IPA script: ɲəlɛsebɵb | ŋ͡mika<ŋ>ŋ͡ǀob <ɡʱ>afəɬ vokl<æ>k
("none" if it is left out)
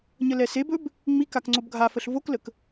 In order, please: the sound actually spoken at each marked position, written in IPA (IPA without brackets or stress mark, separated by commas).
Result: k, ɡʱ, ə